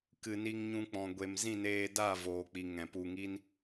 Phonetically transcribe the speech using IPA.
k ɨ˨ n i˧ ŋ ɲ ũ˧ k͡p ɔ̃˨ ɡʷ e˨ m z ĩ˦˨ n eː˧ d a˦˨ v oː˨ k͡p i˨ ŋ ɛ̃˨ p u˧ ŋ i˦ n

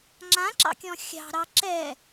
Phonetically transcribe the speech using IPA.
ŋ͡ǁ ã ǁ ɑ̰ kʲ ɔ̃ xʲ ɑ̤ ɾ ɑ ǁ ɛ

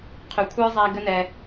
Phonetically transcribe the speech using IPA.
qʰ ʏ˨ kʷʰ ə˞˦ zˤ æ˧ ɡ ə˦ n ɛ˧

